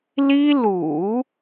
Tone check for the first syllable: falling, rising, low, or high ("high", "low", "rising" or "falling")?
high